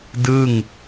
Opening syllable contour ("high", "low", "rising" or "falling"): falling